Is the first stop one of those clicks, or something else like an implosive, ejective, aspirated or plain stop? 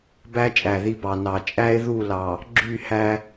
plain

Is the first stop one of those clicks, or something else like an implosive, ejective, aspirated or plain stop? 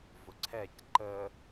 click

